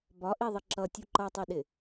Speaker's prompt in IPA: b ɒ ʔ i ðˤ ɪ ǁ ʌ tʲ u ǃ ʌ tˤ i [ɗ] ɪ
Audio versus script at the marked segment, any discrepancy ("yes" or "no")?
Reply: no